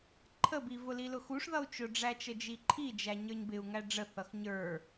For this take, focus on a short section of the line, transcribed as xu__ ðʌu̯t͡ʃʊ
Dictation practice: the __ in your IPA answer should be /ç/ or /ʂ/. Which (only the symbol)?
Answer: ʂ